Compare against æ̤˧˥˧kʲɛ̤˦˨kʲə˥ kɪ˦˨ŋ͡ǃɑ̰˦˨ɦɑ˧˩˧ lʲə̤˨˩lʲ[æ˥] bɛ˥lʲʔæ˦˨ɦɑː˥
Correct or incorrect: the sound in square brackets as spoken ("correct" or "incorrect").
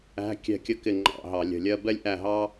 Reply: incorrect